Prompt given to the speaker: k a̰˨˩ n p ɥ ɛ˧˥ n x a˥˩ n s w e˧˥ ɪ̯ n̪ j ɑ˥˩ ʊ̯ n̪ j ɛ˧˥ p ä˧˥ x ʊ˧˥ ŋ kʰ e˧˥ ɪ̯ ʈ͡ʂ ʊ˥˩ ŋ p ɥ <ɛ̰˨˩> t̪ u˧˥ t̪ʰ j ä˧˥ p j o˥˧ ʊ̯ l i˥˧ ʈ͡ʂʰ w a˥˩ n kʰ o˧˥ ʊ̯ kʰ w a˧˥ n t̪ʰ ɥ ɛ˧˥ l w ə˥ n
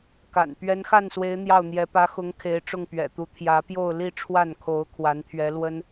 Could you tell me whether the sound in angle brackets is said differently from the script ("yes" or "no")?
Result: no